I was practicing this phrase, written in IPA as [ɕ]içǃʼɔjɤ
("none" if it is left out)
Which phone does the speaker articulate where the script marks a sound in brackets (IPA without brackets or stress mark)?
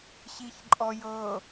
ɕ